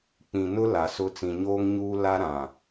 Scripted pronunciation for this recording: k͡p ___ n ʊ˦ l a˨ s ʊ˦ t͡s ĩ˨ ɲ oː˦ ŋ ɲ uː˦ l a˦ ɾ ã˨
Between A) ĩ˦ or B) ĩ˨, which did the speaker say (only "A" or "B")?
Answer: B